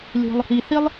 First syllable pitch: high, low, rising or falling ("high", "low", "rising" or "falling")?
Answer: low